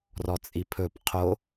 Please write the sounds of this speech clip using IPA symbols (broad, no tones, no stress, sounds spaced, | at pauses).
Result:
r ɔ t͡sʼ i pʰ ɵ p qʰ o